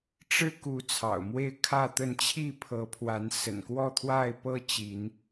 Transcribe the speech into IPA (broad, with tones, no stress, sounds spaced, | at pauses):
ʈ͡ʂ ɻ̩˦ k u˨˦ t͡sʰ ɑ̰˨˩ ʊ̯ m w e˥˨ ɪ̯ kʰ ä˥˨ t̪ ə˥˨ n t͡ɕʰ i˥˨ pʰ ɤ˨˦ pʰ w a˨˦ n s ə̰˨˩ n k w ɔ˥˨ t̪ʰ w a˥˨ ɪ̯ p ɤ˦ t͡ɕ i˨˦ n